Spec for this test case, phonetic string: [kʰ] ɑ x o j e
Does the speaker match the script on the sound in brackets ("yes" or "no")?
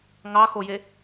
no